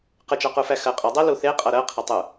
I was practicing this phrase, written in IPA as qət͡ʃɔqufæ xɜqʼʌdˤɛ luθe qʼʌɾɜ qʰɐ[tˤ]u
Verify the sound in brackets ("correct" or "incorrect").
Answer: correct